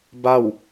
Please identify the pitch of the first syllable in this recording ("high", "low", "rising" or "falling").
falling